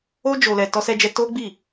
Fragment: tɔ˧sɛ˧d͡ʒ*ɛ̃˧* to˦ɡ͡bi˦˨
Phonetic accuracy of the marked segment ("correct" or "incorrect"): incorrect